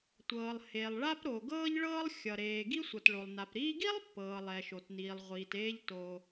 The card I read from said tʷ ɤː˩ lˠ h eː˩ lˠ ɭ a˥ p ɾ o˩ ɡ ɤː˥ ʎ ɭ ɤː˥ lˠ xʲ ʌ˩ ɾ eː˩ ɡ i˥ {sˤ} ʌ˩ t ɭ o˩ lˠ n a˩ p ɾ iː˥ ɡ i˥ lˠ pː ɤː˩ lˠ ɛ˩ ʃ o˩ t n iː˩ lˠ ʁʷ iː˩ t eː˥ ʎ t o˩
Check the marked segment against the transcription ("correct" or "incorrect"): incorrect